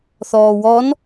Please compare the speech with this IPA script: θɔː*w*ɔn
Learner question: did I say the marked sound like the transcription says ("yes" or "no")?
yes